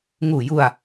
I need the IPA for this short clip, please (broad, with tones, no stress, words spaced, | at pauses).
ŋuː˨˩ju˧a̯